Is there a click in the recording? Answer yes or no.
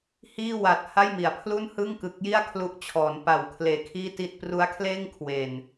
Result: no